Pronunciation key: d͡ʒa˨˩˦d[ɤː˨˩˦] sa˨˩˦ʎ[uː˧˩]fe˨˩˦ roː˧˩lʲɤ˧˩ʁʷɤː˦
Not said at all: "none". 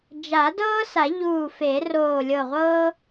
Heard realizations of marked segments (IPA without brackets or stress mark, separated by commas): ɤː˦, uː˧˩